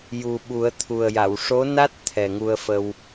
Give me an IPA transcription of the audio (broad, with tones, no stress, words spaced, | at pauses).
ju˨˩ɓu˨˩˦ə̯t̪ʰu˨˩ə̯ja˨˩˨w ʂo˧˥na˦˥t̚ t̪ʰɛ˨˩ŋu˧ə̯fə˧w